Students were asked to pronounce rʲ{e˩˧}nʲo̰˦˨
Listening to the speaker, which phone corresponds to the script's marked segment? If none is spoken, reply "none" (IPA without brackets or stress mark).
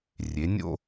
e˩˧